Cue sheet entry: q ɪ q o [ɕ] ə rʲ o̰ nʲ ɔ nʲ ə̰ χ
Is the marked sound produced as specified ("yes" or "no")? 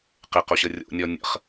yes